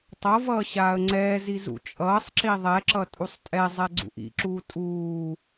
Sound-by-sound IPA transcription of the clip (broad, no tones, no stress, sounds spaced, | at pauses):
tˤ ʌ v ʌː ɕ aː ə̯ ŋ͡ǀ ɛː z i z ṵ t͡ʃʼ ʌː sˤ ǁ i ðˤ ɛ ǁ ʌ tʼ u sˤ tʼ ɛ zˤ ɛ ɡ͡ǀ ṵ ʔ ḭ ǁ uː tʼ uː